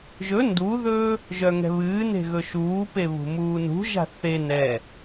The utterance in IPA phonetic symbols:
ʒɵ nduðɵː | ʒœŋɛ̤βɨːne̤ ɣɵʃuːpe βṳmuːnṳʒa̤ θe nɛ

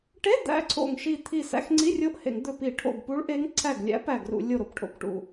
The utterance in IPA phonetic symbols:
ʈe˧˥˧ d̪æ̰˧˥ǀʰo̰˧˩ŋʃi˧˩ t̪ʰi˧˩ sæ̰˧˥˧xŋ͡ǀi˧˥˧rʲo˧˥ʔhḛ˧˩˧ŋ d̪ɵ˧˩ pi˧˩˧ʈʰo̰˧˩ɡ pu˧˥ɭʔe˧˥ŋ ǀʰæ˧˩ɡlʲæ̰˧˥ pæ˧˩ɡrṵ˧˩˧ lʲo˧˩ɾo˧˩pʈʰo̰˧˩p ʈṵ˧˩

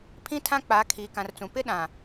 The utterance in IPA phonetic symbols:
pʰĩ˦tʰã˦ k͡pa˨˦ kʰiː˨kã˨rt͡sũ˨ pɪ˦ɗã˨

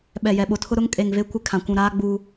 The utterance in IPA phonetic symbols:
ɓɛ˨jɛ˨ɓo˨tʰʊ˦ ɾʊ˦ŋ kʼe˨ŋve˦ kʷɪ˦kʰã˨ kʷũ˨ɾaː˦ɡ͡buː˦

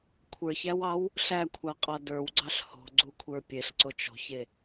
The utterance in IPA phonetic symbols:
kʷʰə˞çæwɑw | ɬækʷʰɑqʼɑ də˞wɡ͡ǀɑɬ ho̤ɡ͡ǀukʷʰə˞ pʲeɬǀot͡ʃ o̤çe

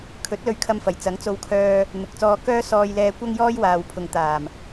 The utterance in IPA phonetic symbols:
kʰɵ˨˥t̚lɵ˧ɥkʰɐ˧mfɐ˨˩j t͡sɐ˨˥ŋt͡so˧wkʰœː˧ | n̪ʊ˨k̚t͡sɔː˧ kœː˥sɔː˧jlɛː˧ kʷɐ˥ŋjɔː˥j waː˨wpʰʊ˨ŋt̪aː˨˩m

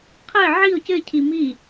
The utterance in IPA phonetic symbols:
qʰəɪ̯ ʕiʊ̯ cɘɪ̯cʰi mi

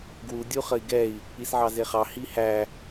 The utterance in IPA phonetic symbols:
ɡwu dʲuχəi̯ɡɛi̯ | isʕɑzeχɑ hihæ

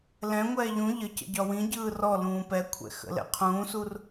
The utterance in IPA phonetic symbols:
lɛ̃ŋʷɛː ʎũ ʎəcə̰ ɟɒwĩɟɯː rɔ lũːpɛkʷʰɛ̰ xə̰lɛ̰qʰũːsur

